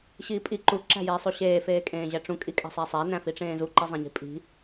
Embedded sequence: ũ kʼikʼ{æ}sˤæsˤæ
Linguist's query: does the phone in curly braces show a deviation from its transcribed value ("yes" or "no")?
yes